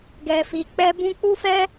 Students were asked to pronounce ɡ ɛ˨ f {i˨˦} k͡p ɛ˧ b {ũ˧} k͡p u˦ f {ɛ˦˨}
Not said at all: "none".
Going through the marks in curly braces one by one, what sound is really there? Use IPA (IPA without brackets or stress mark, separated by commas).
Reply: i˨, ũ˧, ɛ˦